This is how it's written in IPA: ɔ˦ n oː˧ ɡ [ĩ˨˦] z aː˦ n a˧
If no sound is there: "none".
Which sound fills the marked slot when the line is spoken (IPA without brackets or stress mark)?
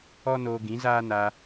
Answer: ĩ˨˦